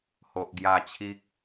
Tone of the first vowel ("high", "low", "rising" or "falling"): low